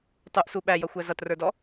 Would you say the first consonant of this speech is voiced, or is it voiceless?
voiceless